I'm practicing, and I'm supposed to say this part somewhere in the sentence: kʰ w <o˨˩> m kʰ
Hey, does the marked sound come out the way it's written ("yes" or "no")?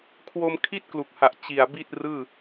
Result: no